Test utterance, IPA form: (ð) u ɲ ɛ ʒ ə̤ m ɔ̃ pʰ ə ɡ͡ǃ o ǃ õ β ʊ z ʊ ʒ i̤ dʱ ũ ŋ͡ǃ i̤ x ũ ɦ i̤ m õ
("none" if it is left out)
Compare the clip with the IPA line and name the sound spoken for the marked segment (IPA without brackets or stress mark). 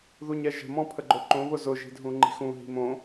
ð